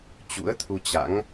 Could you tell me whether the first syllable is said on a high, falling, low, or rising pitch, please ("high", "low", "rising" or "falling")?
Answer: rising